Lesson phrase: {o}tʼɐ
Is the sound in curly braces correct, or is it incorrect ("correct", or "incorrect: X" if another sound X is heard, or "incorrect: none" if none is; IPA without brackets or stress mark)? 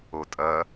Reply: correct